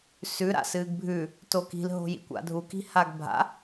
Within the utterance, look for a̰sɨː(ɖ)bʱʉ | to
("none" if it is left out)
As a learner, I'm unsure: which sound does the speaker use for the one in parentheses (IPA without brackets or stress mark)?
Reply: ɡ